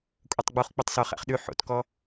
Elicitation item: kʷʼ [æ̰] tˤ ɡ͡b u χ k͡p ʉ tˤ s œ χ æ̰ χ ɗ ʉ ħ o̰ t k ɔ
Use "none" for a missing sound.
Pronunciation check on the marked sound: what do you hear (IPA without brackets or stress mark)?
æ